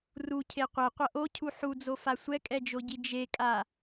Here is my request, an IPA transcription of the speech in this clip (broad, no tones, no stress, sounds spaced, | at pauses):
r u cʰ e qʷ ɛ qʷ ʌ ʔ o cʰ u ħ u d͡z o f a sʷ ɛ kʼ ɛ d͡ʒ o ɟ i d͡ʒ e kʼ a